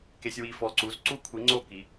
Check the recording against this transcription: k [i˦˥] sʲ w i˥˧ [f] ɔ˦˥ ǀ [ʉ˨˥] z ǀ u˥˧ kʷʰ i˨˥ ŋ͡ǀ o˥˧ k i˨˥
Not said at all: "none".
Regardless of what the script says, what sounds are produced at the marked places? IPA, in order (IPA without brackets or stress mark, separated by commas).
e˦˥, f, u˨˥